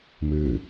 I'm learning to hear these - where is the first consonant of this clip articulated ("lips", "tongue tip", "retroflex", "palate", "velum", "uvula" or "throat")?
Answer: lips